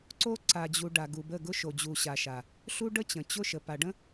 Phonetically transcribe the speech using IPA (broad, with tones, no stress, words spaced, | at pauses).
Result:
ǀo˦ ǀa˨d͡ʑu˨ ɖa˨ɡu˨bə˦˨ ɡʊ˦ʃo˨d͡ʑu˨ ɕa˨ʃa˨ | ɬu˦ɖə˦t͡ɕə̃˨ t͡ɕʊ˦ ʃə˨ pa˨ɖə̃˦